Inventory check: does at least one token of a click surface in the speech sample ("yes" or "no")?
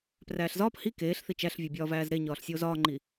yes